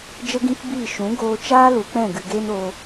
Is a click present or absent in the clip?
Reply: absent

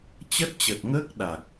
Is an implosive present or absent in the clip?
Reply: present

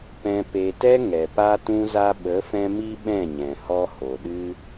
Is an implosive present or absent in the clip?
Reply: present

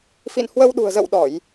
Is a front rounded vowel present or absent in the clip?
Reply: absent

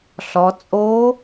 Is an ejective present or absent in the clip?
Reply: present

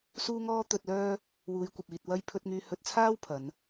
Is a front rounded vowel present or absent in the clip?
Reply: present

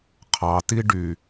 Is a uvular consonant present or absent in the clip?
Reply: present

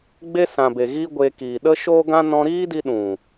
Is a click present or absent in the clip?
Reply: absent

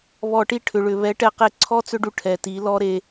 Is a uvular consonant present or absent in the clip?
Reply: present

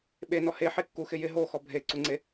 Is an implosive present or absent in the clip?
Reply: present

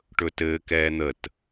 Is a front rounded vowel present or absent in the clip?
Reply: absent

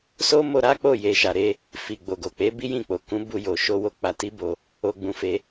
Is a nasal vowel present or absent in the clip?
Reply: present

